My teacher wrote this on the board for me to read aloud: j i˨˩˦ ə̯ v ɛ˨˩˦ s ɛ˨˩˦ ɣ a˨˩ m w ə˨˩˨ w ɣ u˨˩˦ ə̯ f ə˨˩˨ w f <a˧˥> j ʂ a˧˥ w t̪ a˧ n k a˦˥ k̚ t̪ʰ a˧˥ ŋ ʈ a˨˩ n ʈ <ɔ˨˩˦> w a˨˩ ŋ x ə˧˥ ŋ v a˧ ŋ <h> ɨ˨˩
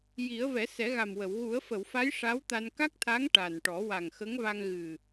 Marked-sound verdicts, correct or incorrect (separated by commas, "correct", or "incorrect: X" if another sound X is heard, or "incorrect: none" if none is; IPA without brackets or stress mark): correct, correct, incorrect: ɣ